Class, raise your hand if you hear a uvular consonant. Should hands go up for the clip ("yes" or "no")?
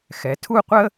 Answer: yes